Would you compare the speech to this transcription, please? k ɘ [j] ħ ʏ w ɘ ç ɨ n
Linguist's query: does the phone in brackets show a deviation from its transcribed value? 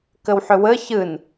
yes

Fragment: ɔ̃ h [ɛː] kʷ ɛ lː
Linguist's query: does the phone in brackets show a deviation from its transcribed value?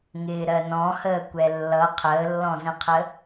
yes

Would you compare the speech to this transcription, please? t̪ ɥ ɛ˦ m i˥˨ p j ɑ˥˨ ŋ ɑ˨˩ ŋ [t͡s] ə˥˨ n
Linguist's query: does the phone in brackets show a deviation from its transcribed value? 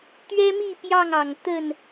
yes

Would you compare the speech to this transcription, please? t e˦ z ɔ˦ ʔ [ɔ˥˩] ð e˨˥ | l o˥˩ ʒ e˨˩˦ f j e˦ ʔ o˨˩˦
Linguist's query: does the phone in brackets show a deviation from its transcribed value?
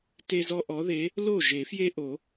yes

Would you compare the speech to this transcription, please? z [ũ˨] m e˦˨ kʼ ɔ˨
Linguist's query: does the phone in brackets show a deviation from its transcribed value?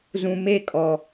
no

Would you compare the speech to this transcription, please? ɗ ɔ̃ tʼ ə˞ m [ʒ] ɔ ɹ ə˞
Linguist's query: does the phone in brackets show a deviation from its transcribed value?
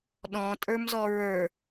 yes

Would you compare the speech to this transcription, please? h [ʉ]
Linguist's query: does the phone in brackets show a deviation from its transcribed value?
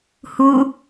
yes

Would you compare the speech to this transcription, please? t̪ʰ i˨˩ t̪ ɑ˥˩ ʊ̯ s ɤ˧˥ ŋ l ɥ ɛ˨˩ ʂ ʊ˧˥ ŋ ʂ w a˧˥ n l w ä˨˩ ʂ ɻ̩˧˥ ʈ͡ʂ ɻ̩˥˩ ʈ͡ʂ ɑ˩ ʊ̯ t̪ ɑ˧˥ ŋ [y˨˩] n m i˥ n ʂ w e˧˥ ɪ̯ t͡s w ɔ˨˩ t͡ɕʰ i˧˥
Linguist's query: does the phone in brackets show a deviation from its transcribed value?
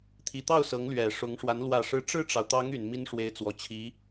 no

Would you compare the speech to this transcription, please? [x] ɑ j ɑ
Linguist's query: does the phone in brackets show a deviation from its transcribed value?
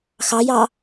no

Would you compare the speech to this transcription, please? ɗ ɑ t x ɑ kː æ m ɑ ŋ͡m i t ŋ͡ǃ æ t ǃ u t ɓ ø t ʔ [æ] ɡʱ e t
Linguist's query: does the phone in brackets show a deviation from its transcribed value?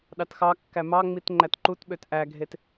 no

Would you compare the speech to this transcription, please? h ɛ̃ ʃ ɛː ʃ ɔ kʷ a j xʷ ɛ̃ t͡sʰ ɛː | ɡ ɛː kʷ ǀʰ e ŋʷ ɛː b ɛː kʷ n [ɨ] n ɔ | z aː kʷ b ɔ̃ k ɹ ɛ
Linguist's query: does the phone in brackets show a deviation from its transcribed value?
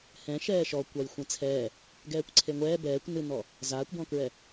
no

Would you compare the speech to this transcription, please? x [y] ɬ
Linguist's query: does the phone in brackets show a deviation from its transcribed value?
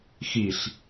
yes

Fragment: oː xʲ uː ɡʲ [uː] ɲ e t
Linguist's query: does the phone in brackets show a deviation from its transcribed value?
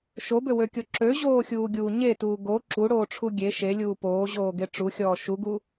no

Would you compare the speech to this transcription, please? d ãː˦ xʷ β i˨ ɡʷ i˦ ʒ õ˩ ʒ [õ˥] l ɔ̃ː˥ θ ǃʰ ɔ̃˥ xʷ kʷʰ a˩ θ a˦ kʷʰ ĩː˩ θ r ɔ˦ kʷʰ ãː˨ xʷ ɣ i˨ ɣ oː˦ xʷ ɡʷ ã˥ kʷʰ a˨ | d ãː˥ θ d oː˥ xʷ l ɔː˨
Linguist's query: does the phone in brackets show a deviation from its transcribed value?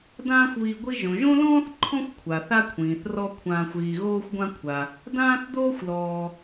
no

